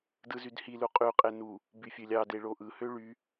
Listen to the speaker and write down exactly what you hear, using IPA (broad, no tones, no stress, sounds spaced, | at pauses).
d ɯ z y d h i l u qʼ y qʼ e n u | b y fʲ ø lʲ ɑ d e ɭ o ʔ ɯ h ø ɭ y